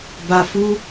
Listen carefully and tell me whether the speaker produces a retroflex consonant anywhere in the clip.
no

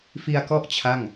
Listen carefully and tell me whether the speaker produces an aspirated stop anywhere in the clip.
yes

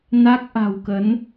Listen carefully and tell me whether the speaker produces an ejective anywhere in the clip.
no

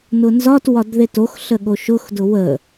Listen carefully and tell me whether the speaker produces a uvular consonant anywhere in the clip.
no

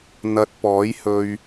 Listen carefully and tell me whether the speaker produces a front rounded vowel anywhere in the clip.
no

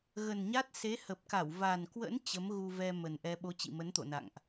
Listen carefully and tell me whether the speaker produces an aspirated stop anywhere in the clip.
no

